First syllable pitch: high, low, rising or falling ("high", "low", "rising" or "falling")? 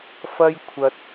high